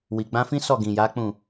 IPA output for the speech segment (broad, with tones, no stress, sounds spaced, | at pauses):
w i˨ ɡ͡b ã˧ f ĩ˦ s ɔ˦˨ ɡ ĩ˨ j a˨˦ k͡p ũ˦˨